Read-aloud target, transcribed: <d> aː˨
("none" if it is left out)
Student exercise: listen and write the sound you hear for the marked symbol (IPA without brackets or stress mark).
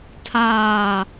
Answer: tʰ